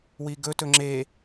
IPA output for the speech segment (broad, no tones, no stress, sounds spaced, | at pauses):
w i ɡ ɵ t ɵ ŋ͡ǁ e